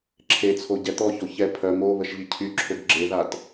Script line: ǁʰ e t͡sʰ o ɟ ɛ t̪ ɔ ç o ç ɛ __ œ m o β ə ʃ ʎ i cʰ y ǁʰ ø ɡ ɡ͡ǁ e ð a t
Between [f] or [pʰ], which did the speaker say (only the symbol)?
pʰ